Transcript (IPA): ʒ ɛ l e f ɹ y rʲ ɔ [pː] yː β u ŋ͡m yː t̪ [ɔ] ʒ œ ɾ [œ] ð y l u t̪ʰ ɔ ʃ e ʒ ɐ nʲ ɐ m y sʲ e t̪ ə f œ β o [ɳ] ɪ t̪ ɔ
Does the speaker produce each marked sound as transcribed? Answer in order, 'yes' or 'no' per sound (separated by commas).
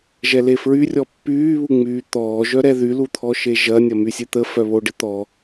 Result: yes, no, no, no